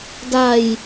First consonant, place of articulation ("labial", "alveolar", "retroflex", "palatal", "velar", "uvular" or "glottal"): alveolar